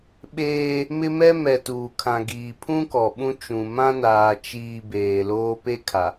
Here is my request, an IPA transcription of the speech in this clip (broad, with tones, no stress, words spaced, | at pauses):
ɓeː˦ | mɪ˦mɛ˦ mɛ˨ tuː˨kʰã˨ ɡiː˨pʰũ˦kɔ˨ ɓũ˦t͡ʃũ˨ mã˦naː˨ t͡ʃiː˨ beː˨loː˦ pe˦ kʰa˨